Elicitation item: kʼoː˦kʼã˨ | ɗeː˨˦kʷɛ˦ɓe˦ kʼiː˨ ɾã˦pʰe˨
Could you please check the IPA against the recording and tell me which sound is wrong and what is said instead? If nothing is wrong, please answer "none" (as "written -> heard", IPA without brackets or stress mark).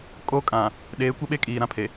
none